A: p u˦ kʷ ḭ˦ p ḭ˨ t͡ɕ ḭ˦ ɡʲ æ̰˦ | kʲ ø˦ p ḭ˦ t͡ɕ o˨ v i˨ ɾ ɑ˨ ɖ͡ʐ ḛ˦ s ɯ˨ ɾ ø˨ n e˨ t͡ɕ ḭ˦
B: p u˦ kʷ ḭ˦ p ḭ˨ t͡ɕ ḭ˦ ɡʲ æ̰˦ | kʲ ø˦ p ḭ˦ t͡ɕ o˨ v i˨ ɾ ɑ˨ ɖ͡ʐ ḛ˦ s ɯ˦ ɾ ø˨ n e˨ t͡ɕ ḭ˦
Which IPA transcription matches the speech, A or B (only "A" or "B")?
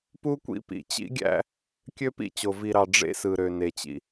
A